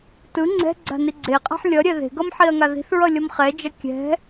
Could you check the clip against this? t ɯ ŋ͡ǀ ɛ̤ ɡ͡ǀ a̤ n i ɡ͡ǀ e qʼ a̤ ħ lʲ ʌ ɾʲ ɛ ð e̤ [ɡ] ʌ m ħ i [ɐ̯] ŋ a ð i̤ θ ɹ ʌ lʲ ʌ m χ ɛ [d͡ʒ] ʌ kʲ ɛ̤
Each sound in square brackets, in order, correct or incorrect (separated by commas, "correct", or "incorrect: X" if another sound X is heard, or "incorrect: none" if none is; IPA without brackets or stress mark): correct, correct, correct